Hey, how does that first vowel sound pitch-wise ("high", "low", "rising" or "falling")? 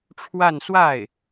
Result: falling